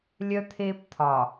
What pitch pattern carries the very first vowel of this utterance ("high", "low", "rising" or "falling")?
high